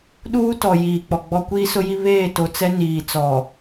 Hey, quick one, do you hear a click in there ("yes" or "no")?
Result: no